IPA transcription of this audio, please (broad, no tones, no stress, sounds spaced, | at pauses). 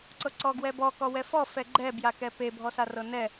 ǀ ɤ ǀ ɔ ɡ w ɛ b ɔ k ɔ w ɛ f ɔ f ɛ ɡ͡ǃ ɛ b j a k ɛ p e bʱ ɔ s a r ɤ n ɛ